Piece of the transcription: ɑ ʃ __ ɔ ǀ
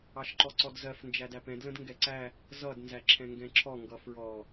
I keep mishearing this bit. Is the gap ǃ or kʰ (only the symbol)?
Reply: ǃ